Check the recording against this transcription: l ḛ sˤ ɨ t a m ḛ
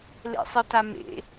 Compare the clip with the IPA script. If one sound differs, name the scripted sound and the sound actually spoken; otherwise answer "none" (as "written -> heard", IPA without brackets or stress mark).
none